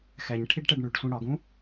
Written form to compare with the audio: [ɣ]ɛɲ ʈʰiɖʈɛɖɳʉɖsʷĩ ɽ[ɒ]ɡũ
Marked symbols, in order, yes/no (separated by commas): no, yes